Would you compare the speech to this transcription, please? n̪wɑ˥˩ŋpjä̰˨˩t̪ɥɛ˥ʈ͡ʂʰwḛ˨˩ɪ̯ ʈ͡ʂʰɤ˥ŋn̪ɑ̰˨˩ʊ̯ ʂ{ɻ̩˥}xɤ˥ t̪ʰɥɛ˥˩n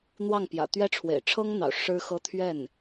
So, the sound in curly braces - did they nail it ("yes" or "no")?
yes